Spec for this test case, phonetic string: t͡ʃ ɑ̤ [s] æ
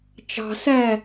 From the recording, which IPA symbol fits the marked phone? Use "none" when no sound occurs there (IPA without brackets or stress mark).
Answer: s